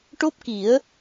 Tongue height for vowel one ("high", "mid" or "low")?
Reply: mid